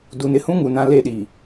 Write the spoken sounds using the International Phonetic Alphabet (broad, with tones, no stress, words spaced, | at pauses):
du˨nɪ˦hũ˦ ŋu˨nã˦ le˦ɗi˨